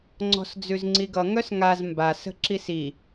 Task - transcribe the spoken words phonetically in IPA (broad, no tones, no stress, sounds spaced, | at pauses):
ŋ͡ǀ ɔ̤ s d͡z ʉ z ŋ͡ǀ i ɡ ʌ ŋ œ s ŋ a z m b a s ə̤ ǁ i s i